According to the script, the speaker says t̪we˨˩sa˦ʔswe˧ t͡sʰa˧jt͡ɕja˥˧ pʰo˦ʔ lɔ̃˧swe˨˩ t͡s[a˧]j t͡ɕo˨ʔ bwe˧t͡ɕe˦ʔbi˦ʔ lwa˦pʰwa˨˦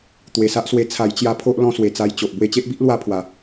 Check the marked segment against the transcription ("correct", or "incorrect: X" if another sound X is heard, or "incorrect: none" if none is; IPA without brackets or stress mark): correct